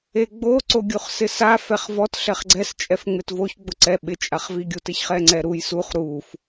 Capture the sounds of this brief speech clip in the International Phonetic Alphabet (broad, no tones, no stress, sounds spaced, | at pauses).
e ɡ͡b o ǀ o ɡʲ u χ s ɪ s a f ɛ χ v ɔ t ɬ ɛ χ ɡ͡ǀ ɛ s t͡ʃʼ ɛ f ŋ͡m ɪ t v o ç ɡ͡b ʊ ǀ ɛ ɓ ɪ t͡ʃʼ a χ v i ɡʲ u t ɪ ç χ ɛ ŋ͡ǀ ɛ ɾ u j s u χ ɾ u f